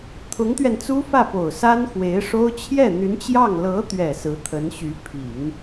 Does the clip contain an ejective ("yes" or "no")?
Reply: no